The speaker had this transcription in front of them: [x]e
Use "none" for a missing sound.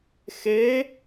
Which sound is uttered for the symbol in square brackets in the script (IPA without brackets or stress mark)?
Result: x